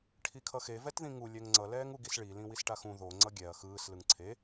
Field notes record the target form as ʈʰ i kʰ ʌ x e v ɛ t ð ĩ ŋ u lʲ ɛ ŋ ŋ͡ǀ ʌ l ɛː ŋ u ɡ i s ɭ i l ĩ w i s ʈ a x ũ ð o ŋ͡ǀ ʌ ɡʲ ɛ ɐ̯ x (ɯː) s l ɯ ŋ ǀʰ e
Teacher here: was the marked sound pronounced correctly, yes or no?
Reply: yes